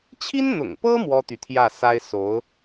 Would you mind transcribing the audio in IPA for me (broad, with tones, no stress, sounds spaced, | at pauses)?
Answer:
t͡ɕʰ i˥ n n̪ ʊ̰˨˩ ŋ p ɤ˥ m w ɔ˥ t̪ y˨ t̪ʰ j ä˥˩ s a˥ ɪ̯ s o˧˥ ʊ̯